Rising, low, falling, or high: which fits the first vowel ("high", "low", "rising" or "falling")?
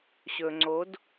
low